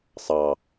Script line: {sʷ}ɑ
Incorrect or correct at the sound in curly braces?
incorrect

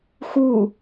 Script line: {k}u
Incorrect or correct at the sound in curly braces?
incorrect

